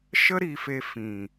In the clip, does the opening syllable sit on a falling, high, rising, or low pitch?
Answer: high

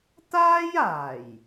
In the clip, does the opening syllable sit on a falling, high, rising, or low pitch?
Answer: high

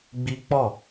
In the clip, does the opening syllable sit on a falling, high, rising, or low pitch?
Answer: high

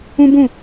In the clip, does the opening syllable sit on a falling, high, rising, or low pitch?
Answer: high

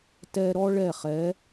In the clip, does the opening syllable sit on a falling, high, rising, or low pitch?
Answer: high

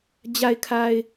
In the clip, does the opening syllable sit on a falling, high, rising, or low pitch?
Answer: low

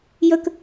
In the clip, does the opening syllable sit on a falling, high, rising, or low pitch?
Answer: high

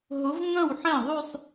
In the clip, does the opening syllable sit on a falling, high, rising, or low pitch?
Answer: rising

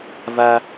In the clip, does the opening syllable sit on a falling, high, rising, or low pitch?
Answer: high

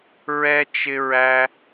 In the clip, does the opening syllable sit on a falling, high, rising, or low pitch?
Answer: high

